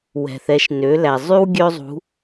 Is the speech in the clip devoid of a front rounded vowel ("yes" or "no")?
no